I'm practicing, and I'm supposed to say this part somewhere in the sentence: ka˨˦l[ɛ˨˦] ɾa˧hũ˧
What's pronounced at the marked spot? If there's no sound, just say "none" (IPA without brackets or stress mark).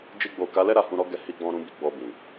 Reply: ɛ˦